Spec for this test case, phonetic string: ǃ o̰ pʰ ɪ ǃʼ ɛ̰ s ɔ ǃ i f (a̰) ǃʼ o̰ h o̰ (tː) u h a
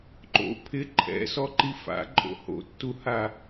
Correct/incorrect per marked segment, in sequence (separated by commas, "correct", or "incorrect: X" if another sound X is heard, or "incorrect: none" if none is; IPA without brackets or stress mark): correct, correct